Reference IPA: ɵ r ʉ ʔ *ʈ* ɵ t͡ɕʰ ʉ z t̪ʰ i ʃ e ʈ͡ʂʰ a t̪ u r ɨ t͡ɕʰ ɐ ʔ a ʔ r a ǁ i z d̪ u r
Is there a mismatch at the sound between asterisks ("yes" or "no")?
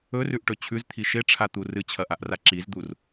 no